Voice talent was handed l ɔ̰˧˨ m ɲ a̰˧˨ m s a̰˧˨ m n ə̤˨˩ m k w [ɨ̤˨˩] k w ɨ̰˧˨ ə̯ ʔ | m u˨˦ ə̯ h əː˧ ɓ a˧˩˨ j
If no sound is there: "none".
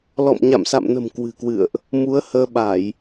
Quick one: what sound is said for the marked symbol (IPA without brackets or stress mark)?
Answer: ɨ̤˨˩